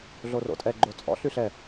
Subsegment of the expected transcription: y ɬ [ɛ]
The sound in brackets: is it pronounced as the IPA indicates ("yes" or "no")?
yes